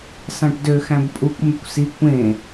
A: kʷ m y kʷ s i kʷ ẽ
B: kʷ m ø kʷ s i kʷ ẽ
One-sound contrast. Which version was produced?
A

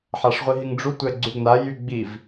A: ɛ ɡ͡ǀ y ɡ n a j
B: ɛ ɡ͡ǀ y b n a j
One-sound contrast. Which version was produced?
A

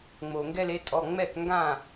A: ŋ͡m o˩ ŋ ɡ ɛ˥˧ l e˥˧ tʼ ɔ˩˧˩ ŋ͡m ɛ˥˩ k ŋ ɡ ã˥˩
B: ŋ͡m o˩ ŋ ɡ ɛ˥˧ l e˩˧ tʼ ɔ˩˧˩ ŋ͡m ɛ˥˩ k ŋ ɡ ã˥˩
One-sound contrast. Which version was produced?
A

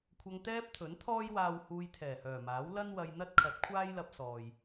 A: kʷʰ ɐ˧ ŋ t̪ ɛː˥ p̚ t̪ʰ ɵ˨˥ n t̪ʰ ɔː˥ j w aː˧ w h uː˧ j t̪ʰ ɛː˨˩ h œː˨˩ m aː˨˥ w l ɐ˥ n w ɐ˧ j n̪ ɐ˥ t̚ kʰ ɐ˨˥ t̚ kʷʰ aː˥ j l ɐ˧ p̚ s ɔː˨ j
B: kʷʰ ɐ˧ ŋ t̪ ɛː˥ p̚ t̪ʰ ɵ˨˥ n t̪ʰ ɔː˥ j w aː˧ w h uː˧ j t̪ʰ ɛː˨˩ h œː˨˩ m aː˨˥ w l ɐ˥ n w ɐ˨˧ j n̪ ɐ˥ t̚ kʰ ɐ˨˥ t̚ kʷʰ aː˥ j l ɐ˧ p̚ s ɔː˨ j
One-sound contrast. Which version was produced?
A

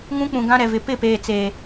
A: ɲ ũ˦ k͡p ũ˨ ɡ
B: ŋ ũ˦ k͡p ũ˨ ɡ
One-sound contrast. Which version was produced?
B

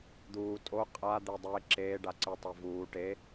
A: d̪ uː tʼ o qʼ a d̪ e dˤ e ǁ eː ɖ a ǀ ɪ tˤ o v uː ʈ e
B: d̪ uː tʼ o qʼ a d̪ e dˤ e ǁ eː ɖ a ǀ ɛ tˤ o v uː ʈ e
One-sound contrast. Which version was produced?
A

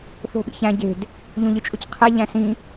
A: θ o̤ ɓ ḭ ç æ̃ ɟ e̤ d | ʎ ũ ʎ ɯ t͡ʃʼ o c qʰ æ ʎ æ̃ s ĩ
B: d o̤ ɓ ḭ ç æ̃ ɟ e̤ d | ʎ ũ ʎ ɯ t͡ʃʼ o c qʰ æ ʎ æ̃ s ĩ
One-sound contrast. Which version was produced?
A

